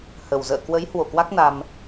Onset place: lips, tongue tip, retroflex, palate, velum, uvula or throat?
throat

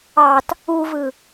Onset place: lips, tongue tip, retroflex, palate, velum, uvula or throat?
tongue tip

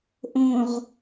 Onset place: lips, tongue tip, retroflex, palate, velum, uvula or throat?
throat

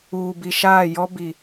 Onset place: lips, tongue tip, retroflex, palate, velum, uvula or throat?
lips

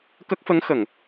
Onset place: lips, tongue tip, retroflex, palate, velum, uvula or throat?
velum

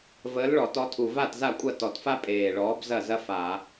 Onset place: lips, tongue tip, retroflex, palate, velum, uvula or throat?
lips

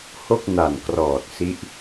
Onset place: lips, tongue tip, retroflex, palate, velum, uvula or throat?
throat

